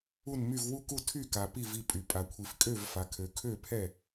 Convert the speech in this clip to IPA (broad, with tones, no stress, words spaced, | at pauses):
u˥˨nmy˥˨v wu˥˨ku˥˨ tʰy˥˨ka˨ pi˥˨vi˥˨pʼy˨ pʼa˨kʷʰi˨fkʼø˥˨vfa˨ kʰø˨kʰø˥˨pʰɛ˥˨